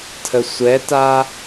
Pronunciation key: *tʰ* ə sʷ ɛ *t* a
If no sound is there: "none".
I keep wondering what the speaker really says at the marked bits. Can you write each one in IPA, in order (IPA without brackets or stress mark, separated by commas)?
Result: tʰ, t